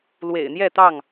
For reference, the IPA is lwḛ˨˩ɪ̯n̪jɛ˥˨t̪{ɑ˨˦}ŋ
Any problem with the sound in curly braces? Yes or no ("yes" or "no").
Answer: yes